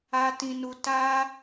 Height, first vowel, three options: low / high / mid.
low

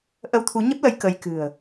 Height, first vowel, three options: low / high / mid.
mid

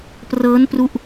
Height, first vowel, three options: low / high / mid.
mid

